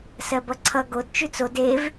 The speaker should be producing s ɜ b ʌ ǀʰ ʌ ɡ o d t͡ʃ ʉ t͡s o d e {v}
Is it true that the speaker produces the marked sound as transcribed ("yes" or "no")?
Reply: yes